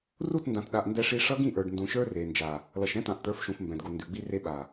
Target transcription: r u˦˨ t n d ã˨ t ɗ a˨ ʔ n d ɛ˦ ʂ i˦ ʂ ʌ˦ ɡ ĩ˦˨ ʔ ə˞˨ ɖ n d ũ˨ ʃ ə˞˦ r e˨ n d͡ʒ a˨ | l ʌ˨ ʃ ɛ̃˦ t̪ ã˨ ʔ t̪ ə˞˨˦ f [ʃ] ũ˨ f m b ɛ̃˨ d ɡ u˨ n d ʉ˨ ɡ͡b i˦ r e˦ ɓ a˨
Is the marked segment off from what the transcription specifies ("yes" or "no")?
no